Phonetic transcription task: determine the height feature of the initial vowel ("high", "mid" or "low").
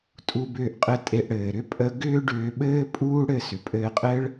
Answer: high